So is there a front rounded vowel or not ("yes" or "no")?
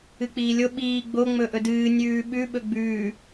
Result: no